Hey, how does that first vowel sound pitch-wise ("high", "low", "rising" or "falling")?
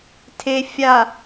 low